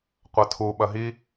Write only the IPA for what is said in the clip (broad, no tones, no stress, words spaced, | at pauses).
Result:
qʷɐtʰu ɓɐɦi